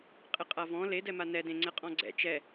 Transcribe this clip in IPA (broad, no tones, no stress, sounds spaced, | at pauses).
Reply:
qʼ ɪ qʼ a v ɔ̃ l e d ɛ m a n ɛ d ẽ ŋ͡ǀ ɛ qʼ ɔ̃ ɡ͡ǀ ɛ̰ t͡ʃ ɛ